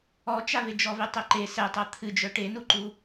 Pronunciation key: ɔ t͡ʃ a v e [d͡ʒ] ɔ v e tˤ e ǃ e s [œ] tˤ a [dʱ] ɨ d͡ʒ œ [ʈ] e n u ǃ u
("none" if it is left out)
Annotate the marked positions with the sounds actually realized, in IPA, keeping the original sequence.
d͡ʒ, ɛ, t̪ʰ, ʈ

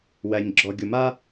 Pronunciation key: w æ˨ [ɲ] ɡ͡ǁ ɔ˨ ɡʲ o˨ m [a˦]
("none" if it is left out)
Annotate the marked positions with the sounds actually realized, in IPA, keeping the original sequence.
ɲ, a˦

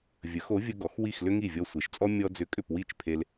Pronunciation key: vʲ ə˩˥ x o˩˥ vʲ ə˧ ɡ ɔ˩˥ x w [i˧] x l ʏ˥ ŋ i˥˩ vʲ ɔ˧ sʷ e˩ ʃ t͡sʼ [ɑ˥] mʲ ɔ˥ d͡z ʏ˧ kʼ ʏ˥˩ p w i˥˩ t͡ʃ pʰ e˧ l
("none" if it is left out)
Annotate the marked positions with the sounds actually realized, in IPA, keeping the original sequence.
i˥˩, ɔ˥

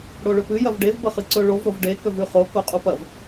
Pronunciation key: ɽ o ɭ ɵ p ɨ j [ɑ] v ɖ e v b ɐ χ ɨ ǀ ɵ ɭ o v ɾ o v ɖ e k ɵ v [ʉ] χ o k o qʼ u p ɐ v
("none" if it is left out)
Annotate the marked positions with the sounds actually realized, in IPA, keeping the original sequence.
ɐ, ʉ

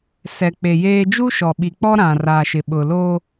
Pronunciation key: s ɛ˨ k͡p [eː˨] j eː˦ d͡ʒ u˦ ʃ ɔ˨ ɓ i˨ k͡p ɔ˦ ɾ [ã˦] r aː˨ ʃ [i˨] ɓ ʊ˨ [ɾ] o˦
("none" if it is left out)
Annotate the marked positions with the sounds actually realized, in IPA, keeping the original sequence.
e˨, ã˨, ɪ˨, l

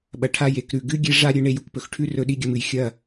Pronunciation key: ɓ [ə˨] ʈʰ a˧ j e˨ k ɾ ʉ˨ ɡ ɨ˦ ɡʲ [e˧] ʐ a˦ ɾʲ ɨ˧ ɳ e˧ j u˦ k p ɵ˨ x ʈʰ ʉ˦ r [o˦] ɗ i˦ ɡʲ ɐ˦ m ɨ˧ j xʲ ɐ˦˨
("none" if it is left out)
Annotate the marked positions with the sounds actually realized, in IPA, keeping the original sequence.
ɐ˨, e˦, ɵ˦

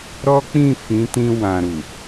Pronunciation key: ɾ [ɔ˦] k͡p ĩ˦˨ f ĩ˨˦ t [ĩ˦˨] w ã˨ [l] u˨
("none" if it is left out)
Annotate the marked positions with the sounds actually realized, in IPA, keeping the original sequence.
ɔ˦, ĩ˧, ɾ

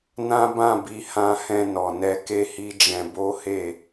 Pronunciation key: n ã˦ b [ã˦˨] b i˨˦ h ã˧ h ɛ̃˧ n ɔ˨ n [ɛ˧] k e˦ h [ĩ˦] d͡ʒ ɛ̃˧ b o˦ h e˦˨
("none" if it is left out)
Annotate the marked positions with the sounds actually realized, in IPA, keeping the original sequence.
ã˦˨, ɛ˧, i˦

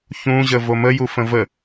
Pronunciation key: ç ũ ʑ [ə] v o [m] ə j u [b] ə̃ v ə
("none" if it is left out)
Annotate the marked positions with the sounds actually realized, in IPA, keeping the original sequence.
ə, m, f

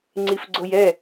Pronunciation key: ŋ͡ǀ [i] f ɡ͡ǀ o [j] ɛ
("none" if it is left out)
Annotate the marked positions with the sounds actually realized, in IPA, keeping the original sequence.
i, j

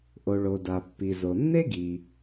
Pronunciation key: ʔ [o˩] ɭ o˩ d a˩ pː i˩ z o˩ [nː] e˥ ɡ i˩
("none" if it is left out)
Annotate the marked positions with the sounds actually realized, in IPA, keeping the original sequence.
o˩, nː

